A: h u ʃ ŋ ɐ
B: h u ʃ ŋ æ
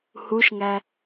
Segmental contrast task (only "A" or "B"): B